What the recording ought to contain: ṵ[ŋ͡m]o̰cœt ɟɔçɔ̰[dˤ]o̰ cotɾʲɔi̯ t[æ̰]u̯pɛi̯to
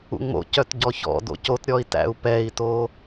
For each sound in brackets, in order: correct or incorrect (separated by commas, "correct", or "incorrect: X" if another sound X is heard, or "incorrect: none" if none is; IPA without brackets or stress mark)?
correct, incorrect: d, correct